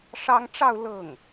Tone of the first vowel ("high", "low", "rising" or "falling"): high